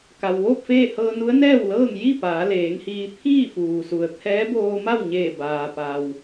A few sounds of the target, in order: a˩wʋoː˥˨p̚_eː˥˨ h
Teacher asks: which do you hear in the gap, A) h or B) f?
B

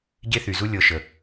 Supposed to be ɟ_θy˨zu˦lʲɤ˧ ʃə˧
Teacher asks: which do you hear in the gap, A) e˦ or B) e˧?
A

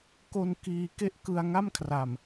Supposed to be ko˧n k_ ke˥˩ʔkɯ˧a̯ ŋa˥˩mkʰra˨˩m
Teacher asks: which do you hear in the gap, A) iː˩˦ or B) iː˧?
B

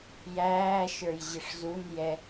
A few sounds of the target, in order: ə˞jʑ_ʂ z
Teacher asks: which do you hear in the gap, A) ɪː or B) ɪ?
B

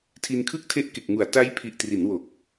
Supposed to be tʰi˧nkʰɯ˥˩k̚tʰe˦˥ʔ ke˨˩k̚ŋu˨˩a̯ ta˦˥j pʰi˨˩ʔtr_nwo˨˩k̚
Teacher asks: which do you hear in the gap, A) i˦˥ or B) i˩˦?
B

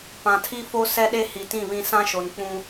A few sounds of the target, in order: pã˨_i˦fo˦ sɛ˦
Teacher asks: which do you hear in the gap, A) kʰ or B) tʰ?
B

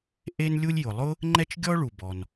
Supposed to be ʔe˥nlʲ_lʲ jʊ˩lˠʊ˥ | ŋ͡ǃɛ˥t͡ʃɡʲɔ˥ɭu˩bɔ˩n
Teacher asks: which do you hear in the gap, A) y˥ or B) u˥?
B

